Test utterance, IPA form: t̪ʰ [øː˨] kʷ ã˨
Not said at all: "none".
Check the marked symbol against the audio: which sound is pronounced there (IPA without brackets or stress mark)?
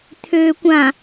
øː˨